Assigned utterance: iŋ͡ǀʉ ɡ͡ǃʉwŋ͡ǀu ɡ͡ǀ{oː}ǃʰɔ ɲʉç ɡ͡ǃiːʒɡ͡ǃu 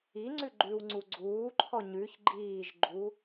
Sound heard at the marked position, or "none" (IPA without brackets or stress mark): uː